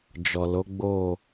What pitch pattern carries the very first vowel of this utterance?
low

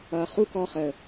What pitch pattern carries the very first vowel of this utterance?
low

